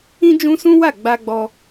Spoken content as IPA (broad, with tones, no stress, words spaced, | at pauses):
ĩ˦d͡ʒũ˦sũ˦wa˦˨ ɡ͡ba˧ɡ͡bɔ˧